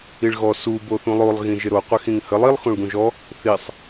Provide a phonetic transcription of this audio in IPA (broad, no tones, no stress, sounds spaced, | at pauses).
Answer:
i ɭ ɣ ɔ s u b o θ ũ lˠ o lˠ ɣ ĩ ʒ ɪ ɾ o qʷ ɪ x ĩ ŋ h ə lˠ i lˠ x õ ɭ ɡ ũ ʒ ɔ | θ i sˤ